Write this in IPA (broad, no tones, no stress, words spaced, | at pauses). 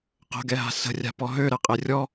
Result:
qə̤ɡɛɦa̤ sə̤rʲa̤pɔ ɦøɾɛqʼe rʲɔ